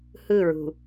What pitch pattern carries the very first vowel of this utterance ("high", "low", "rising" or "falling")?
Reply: falling